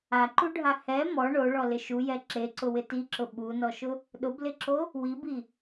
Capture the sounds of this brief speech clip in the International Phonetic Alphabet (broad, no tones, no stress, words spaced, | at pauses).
aǃuɖʱa hɛ mɔ ɳoɭɔlɪ ʃujɛ ǁeǀʊwɪ tiǁʊ ɓunɔʃʊ | ɗʊblɪǁo | wibi